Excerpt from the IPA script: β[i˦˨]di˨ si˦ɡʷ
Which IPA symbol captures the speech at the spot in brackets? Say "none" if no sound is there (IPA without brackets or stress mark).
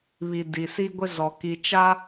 i˨